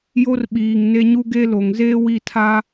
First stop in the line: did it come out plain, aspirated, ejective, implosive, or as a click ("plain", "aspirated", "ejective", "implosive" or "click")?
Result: implosive